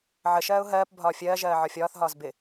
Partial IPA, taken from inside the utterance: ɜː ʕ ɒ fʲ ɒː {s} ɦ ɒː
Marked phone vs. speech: incorrect: θ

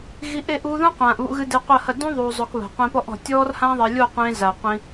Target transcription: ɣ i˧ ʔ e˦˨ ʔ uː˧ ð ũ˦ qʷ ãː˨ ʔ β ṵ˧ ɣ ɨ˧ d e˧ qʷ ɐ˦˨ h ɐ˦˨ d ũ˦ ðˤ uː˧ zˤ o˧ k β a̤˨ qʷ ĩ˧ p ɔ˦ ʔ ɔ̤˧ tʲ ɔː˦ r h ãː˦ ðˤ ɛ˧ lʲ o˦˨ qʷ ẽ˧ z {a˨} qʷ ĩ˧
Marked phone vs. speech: correct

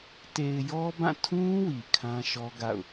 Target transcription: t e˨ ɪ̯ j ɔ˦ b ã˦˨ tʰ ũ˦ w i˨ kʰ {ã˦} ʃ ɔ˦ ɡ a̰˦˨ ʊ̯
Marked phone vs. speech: correct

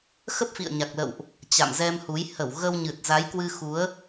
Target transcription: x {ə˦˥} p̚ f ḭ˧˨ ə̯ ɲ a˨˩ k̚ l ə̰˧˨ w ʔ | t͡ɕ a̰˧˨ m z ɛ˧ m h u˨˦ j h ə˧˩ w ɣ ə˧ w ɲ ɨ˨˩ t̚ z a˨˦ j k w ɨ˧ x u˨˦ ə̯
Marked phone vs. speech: correct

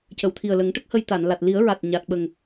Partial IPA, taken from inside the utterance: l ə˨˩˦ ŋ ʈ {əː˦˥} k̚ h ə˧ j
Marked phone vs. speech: incorrect: ə˦˥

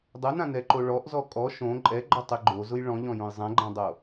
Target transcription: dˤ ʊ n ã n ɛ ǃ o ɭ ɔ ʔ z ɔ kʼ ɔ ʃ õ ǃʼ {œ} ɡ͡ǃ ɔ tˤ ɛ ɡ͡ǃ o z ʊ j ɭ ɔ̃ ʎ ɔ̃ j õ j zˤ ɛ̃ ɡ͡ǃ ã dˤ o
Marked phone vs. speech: incorrect: ɛ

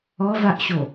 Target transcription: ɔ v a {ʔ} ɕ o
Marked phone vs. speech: correct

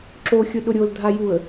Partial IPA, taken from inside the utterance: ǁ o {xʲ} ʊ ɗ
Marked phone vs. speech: correct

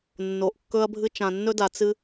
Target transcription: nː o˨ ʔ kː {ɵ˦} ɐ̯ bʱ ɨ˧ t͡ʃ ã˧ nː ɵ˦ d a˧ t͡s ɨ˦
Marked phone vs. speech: incorrect: ɵ˧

